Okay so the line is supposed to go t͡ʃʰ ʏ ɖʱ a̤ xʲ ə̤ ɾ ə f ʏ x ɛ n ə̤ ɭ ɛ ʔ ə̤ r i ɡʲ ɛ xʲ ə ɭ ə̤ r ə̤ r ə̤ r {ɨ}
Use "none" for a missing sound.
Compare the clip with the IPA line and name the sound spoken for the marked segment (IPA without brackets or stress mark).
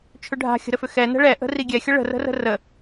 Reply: ə